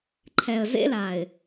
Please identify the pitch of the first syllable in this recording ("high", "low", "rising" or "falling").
low